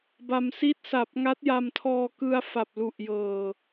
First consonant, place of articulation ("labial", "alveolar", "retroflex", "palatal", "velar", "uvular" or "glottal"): labial